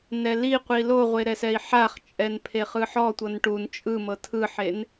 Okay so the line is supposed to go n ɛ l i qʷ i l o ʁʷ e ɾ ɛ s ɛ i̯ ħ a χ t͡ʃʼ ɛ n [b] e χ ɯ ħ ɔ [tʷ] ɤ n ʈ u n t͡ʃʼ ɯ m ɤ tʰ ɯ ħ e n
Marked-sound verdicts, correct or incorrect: incorrect: pʰ, correct

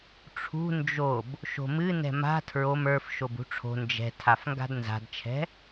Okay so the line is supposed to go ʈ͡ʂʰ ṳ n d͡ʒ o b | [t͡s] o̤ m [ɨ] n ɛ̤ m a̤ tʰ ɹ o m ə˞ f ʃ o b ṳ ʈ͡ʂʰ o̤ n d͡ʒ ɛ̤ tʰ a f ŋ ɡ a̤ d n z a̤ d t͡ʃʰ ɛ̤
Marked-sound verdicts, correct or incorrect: incorrect: ʃ, correct

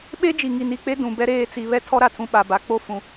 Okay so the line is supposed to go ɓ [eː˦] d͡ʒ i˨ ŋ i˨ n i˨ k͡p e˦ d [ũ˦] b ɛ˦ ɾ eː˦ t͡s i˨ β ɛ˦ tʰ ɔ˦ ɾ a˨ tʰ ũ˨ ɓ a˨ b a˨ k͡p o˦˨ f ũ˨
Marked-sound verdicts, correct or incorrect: incorrect: e˦, incorrect: ũ˨

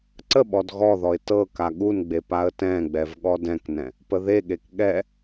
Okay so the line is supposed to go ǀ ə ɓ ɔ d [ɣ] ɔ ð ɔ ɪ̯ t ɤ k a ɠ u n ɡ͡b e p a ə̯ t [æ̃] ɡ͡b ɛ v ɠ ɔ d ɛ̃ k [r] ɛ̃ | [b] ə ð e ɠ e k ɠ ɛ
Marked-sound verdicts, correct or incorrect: correct, incorrect: ɛ̃, incorrect: n, incorrect: p

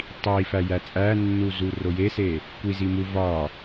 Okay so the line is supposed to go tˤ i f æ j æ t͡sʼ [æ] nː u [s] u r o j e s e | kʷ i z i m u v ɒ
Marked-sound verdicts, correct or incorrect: correct, incorrect: z

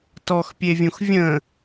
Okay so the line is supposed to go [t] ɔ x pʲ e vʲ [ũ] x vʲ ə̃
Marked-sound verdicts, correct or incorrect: correct, correct

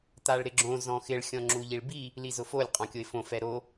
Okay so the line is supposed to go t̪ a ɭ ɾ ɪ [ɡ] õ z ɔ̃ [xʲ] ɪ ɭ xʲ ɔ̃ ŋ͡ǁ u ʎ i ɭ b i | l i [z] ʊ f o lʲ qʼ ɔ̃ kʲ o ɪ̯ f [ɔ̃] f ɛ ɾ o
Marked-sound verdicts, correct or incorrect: incorrect: ɡ͡ǁ, incorrect: x, correct, incorrect: õ

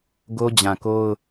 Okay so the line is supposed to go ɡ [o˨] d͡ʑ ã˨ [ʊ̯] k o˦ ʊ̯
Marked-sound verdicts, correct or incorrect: incorrect: o˦, incorrect: none

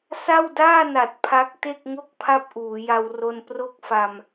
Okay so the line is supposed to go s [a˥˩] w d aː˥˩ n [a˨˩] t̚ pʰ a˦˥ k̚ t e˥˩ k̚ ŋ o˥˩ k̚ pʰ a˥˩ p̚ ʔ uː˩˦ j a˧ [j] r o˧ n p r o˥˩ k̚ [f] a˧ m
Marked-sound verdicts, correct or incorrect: correct, correct, incorrect: w, correct

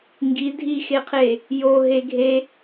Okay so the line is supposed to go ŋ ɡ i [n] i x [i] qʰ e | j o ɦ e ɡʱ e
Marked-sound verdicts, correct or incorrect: incorrect: dʱ, incorrect: e

